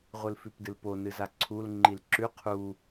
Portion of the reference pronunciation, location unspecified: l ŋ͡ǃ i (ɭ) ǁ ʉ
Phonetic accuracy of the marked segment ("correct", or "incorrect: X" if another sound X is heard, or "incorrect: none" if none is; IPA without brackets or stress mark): incorrect: l